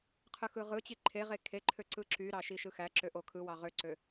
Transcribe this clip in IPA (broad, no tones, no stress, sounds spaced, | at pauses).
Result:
qʰ ɯ x ɯ ʁ ɯ t͡ɕ i ǃʰ e ʁ e kʰ e ǃʰ ø ǀ ɯ ǁ y ɾ ɑ ʃ i ʃ ɯ x æ ǁ ø ʔ o kʰ ɯ w ɑ ʁ ø ǀ ø